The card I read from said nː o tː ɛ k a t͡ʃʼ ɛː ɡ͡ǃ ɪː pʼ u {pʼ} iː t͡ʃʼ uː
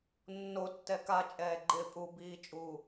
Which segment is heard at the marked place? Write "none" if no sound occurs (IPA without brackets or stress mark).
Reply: b